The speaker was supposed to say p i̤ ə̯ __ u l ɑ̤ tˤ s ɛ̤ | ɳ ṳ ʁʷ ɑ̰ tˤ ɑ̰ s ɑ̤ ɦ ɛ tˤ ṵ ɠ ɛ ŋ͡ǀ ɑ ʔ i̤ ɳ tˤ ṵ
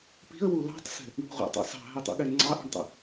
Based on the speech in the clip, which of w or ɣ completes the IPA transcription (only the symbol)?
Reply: w